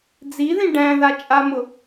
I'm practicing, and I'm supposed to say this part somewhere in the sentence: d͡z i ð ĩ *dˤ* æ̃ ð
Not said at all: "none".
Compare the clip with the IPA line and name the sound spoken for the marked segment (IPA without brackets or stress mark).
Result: ɖ